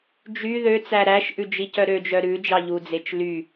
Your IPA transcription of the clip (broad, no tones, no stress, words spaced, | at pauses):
d͡ʒy ðø t͡sæɾæʃʔʉ d͡ʒicœɾød͡ʒœ ɾʉ d͡ʒɑʎud͡zet͡ʃ ly